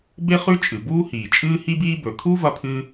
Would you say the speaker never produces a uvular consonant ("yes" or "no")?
no